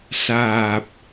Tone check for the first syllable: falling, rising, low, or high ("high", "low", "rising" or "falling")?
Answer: low